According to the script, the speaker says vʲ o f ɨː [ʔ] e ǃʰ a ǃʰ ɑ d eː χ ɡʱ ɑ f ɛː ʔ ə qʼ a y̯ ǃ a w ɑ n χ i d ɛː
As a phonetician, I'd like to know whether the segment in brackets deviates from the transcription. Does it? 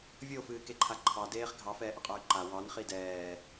yes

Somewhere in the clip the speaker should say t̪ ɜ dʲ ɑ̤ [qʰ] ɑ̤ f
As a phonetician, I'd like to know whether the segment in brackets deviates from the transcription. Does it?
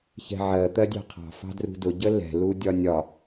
no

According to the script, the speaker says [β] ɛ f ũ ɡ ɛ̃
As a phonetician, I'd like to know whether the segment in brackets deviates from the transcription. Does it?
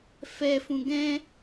yes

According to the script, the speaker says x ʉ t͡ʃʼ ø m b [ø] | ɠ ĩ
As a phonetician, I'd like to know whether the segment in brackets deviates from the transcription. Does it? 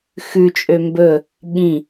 yes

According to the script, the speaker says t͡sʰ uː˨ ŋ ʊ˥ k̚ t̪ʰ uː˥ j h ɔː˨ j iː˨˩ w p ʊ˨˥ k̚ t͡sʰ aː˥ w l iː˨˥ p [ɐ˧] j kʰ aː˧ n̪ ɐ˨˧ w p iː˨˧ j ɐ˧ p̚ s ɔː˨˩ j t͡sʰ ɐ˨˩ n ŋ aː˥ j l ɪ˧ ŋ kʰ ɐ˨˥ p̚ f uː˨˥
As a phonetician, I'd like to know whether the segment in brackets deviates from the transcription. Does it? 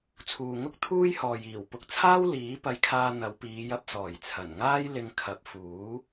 no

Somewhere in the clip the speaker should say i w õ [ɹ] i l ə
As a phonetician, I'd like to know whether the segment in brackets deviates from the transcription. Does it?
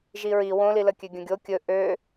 yes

